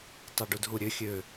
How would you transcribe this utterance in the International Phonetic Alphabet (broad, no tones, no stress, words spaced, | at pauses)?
tˤaɖudɦuɾʲø xʲø